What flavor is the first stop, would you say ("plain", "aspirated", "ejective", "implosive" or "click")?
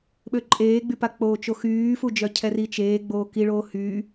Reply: implosive